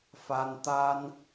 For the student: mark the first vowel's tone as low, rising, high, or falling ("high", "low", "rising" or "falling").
high